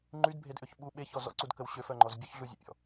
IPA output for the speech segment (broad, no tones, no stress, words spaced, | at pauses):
ŋ͡ǃydbʱedʔøç ɓu ɓeçɔ zɔ̰ǀudkəw ɕøfœŋ͡ǃɔz bʲœçɮuzʲə̰pʲɔ̰